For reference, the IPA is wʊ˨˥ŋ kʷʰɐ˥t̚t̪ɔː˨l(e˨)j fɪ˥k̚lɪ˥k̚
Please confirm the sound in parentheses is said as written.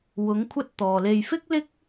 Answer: no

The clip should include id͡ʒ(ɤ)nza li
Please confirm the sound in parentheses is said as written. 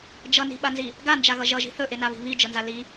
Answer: yes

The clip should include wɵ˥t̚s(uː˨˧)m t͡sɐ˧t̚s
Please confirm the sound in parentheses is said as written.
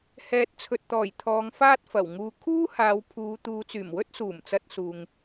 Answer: no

